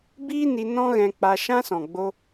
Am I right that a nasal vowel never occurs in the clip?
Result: no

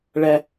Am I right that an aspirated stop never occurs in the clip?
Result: yes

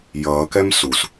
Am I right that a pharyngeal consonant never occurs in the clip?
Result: yes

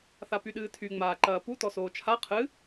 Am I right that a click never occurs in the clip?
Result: no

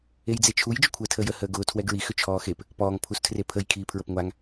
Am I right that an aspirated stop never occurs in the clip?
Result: no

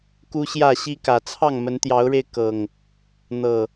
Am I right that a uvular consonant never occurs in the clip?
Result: yes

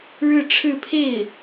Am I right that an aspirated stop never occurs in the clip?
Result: no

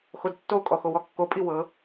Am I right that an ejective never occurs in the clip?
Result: no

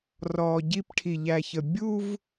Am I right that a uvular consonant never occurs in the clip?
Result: yes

